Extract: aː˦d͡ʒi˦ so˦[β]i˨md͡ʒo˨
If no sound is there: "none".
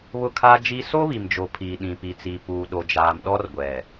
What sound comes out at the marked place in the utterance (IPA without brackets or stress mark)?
β